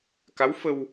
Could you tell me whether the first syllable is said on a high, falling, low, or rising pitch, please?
rising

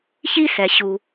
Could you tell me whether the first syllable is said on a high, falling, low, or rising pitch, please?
high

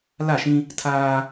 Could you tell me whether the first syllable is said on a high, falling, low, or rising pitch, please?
falling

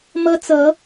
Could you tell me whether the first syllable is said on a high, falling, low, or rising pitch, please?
high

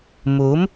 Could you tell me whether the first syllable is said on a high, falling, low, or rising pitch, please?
rising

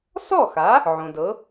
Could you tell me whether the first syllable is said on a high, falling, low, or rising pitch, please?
falling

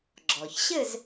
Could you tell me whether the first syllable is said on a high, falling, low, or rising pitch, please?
low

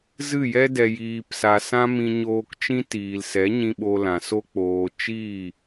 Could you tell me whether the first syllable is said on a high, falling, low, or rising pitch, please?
falling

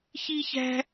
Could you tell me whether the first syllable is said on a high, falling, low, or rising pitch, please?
high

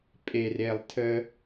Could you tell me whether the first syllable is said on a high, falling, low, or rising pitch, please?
low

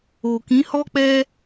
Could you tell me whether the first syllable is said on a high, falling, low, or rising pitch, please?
low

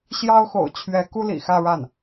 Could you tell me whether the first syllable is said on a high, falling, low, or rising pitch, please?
high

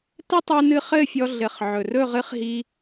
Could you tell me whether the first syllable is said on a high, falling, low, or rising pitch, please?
high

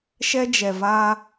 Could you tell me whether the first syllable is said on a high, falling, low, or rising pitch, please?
high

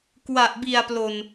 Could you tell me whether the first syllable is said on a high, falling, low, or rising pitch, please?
low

